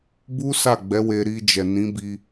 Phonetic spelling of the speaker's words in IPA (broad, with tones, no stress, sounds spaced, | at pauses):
b u˦ s a˦˨ ɡ͡b ɛ˨˦ w e˧ ɾ i˧ d͡ʒ ɛ˨ n ĩ˨˦ b i˧